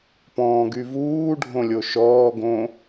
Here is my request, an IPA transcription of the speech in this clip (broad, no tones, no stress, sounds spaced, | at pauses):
p ɔ̃ː ɡ y v uː ɖʱ õ lʲ o ʃ ɔː ɡ õ